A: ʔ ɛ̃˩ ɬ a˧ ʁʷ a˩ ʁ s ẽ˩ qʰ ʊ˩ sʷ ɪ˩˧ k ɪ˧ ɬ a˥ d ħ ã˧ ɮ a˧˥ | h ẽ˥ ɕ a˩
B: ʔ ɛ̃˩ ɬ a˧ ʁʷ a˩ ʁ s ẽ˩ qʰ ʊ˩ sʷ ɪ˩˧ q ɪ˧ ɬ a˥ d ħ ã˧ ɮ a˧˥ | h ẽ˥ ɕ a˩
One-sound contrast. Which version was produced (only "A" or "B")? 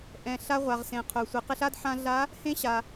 B